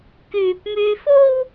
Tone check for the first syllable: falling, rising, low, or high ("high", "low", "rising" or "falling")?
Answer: low